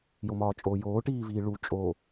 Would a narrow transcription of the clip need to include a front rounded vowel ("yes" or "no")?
no